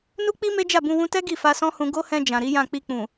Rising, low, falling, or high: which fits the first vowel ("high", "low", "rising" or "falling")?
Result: high